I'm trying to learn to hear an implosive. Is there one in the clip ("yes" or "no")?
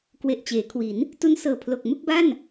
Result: no